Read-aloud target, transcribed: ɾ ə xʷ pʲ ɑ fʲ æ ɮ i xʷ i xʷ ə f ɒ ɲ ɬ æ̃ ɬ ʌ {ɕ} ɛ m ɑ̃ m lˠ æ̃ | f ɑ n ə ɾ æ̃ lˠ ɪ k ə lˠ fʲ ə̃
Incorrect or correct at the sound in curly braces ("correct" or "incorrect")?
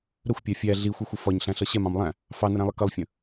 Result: correct